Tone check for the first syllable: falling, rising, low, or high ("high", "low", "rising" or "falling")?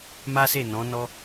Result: high